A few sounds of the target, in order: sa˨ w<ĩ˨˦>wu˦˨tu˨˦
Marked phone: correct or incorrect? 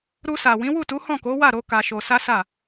correct